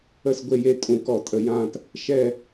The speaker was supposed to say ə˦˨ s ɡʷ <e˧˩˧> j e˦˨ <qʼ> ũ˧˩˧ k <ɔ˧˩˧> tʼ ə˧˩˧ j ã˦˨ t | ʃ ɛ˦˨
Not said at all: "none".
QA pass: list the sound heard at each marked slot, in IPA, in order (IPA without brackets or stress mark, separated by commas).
e˦˨, tʼ, ɔ˧˩˧